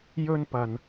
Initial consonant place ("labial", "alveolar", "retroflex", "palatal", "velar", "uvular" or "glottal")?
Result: palatal